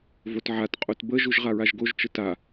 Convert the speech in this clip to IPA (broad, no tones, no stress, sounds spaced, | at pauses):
v o t ʕ a t qʼ o t b ə ʒ u ʒ ʁ a ɹ a ʒ ɡ o ʒ t͡ʃ ə t a